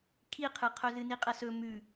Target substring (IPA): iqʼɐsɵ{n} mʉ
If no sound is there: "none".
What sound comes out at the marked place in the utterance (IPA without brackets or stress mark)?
none